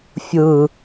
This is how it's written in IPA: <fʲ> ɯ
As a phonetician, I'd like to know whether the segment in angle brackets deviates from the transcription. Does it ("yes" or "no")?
no